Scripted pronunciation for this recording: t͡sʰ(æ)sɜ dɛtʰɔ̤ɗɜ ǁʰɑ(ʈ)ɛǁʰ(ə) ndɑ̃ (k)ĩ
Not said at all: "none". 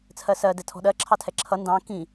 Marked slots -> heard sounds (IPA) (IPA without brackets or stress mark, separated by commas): ɜ, tʰ, ʌ, k